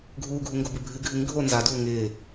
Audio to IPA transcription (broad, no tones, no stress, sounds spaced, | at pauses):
ɡʱ uː ɡʱ u ŋ ɡ o b ɨ bʱ ɨ ɡʱ ɨ ŋ ɡʱ o n z a d uː ŋ ɪː